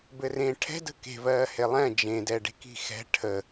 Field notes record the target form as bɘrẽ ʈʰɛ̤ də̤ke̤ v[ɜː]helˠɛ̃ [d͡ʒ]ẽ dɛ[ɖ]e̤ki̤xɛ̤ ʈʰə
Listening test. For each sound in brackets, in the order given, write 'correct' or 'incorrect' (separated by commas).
correct, correct, correct